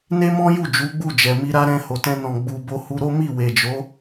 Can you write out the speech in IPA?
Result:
n e˦ m ɔ̃˦ j u˦˨ d͡ʒ u˨˦ ɡ͡b u˦˨ d͡ʒ ɛ˨ m i˧ ɾ a˦ ɾ ɛ̃˧ h o˨ t ɛ̃˧ n ɔ̃˨ ɡ͡b u˨ b o˧ h u˧ ɾ o˦ m i˦˨ w e˨ d͡ʒ o˨˦

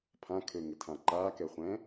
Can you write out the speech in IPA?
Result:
pʰ ã kʰ ø ŋ ɘ tʰ ã ǃ a k ɛ χʷ ɛ̃

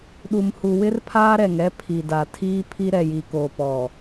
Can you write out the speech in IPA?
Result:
ɗ u˨ m h u˨ w ɪ˦ r pʰ aː˦ ɾ ɛ˨ ŋ ɛ˦ pʰ i˨ d a˨ tʰ iː˦ pʰ i˦ ɾ ɛ˨ j i˨ k oː˨ p ɔ˨

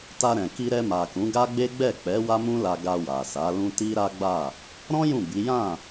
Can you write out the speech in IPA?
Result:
t a˧ ɾ ɛ̃˨ k i˧ ɾ ɛ˧ m a˨ k ũ˨˦ ɡ a˦ ɡ͡b e˦ ɡ͡b ɛ˦˨ k͡p ɛ˨˦ w a˦ m ũ˦ l a˧ ɡ a˧ w a˨ s a˨˦ l ũ˦ t i˦ ɾ a˦ ɡ͡b a˦˨ | ɾ ɔ̃˦ j ũ˦˨ b i˨˦ j ã˦˨

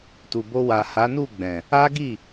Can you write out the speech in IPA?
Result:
t u˨ b o˧ w a˨ h a˨˦ n u˦˨ ɡ͡b ɛ̃˨ | a˦ ɡ i˦˨

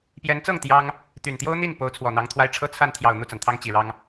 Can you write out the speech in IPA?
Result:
p j ɛ˧˥ n t͡s ɤ˥˩ ŋ t̪ j ɑ˥ ŋ | t̪ y˨˩ n t̪ j o˥ ʊ̯ n̪ i˥˩ n p o˧˥ ʊ̯ t͡sʰ w ɔ˨˩ n̪ ɑ˧˥ ŋ t̪ʰ w a˥ ɪ̯ ʈ͡ʂʰ ɤ˥ t͡sʰ a˥˩ n t̪ʰ j ɑ˨˩ ʊ̯ n̪ u˥˩ t͡s a˩ n t̪ʰ ɑ˥ ŋ t͡ɕ i˨˩ ɻ ɑ˥ ŋ

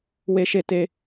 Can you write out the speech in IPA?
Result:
w e˧ ʃ e˧ t e˧

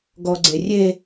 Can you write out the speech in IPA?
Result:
ɡ ɔ ɡ͡ǀ e rʲ e

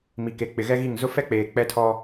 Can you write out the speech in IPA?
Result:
m i˨ k e˨ k͡p ɪ˨ ɣ ɛ˦ ɣ i˦˨ ŋ z ʊ˦ f ɛ˦ k͡p eː˨ k͡p ɛ˦ tʰ ɔ˦

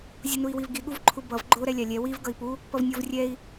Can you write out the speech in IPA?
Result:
zʲ u n u i̯ w i v ɡ i ɠ u v ǃʰ u b ʌ v ɡ͡ǃ o ɾ ɛ lʲ a lʲ ɛ w i v ɡ ʌ i̯ p u | p ʌ v nʲ o v rʲ ɛ i̯

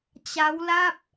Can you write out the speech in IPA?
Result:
t͡ɕ a˦˥ w l a˥˩ p̚

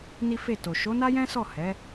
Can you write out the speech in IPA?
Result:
n i˦ f e˦˨ t o˨ ʃ o˨˦ n a˦ j ɛ̃˦ s ɔ˦˨ h ɛ˨˦

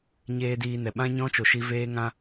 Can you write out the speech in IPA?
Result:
ɲ eː˦ d iː˧ n ɛ˨ ɓ ã˦ ɲ ɔ̃˦ t͡ʃ o˨ ʃ i˧ v eː˦ ŋ ã˦

